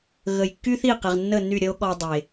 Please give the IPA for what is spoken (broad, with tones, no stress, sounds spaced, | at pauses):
ɣ ə˨ j kː y˦ θ i˦˨ q e˨ ʁ nː ə˦˨ n y˦˨ ɾʲ ə˦ o̯ ɠ ɔ˧ dˤ e˨